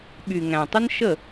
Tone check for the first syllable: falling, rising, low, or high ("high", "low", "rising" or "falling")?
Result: low